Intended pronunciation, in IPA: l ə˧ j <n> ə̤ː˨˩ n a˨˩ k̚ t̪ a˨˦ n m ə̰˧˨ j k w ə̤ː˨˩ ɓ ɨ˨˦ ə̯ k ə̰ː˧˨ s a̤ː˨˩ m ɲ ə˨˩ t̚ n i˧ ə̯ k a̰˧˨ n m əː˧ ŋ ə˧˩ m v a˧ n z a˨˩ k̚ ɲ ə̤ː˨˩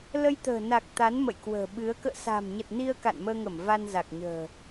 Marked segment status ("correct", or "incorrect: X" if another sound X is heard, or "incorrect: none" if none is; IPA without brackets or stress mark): incorrect: t̪